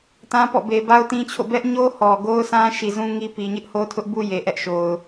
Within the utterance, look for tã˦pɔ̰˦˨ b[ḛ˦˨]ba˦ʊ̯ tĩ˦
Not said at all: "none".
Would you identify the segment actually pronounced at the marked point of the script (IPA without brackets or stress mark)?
e˨